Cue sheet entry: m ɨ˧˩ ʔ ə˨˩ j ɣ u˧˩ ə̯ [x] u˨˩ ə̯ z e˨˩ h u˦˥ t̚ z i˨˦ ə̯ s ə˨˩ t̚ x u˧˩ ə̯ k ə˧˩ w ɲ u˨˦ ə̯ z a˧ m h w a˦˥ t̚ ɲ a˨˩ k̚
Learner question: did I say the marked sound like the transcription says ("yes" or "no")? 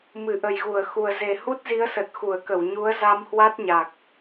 yes